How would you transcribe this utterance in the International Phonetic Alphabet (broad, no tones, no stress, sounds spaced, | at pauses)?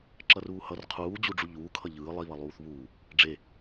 ǁ ʌ r uː h ʌ r qʰ uː d͡ʑ u ɖ͡ʐ u ʎ uː kʰ ʌ ʎ ɯː lˠ i β ʌ lˠ uː θ β uː | ɖ͡ʐ e